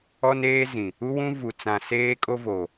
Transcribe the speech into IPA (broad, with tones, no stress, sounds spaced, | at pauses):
ɔ˦ n eː˦ z ĩ˨ | u˦ w ũ˦ v u˨ t͡s ã˨ s eː˦ kʼ o˦ v o˨